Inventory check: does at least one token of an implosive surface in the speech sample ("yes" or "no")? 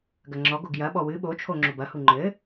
yes